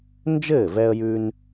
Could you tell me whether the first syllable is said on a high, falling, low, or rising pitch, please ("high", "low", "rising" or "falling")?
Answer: falling